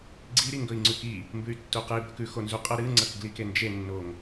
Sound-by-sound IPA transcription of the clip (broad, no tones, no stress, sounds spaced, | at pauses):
ɡ͡ǀ i ɾ i ŋ ɡ ɵ i̯ ŋ͡ǀ ʉ k i | m b ʉ y̯ tː u q ɨ i̯ b ɵ k ʉ x o n z u qʼ ɐ ɾ ɨ ŋ͡ǀ ɐ k ɡ l i k e n d͡ʒ e nː o ŋ